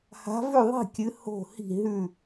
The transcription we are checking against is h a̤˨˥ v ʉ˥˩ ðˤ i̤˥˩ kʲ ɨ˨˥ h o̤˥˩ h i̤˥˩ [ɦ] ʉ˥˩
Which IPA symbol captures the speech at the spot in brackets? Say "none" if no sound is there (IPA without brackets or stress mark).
ɦ